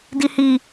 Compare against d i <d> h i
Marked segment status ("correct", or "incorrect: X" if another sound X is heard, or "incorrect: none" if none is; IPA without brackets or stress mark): incorrect: none